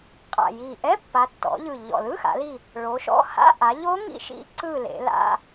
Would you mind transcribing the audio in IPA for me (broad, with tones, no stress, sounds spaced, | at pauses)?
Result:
qʼ a̰˨˩ j i˨˩ ʔ ɛ˧˥˧ pː a˩˧ tː ɔ̰˩˧ ʎ ɯ˨˩ ʎ ɔ̰˨˩ l ɯ˧˥˧ x a̰˩˧ l i˦˨ | ɭ o˩˧ ʃ ɔ̰˧˥˧ h a̰˧˥˧ ʔ a˩˧ ʎ o˦˥ ŋ ḭ˦˨ ʃ ḭ˦˥ ǀ ɯ˦˨ l ḛ˩˧ l a̰˧˥˧